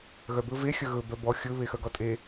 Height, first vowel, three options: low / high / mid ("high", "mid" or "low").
mid